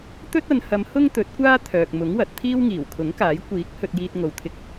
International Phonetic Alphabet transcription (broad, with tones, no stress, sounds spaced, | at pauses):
t̪ ɵ˥ t̚ ɐ˨˧ n h ɐ˨˧ m h ʊ˥ ŋ t̪ ɵ˨˥ t̚ kʷ aː˥ t̪ʰ œː˨ k̚ m ʊ˨˥ ŋ w ɐ˨ t̚ t̪ʰ iː˥ w ŋ iː˨˩ w kʰ ʊ˨˥ ŋ k aː˨˥ j kʷ iː˨˥ k̚ h ɵ˧ t̚ j iː˧ t̚ ŋ o˨ w t̪ʰ ɪ˧ k̚